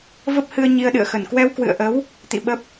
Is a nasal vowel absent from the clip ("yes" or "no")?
yes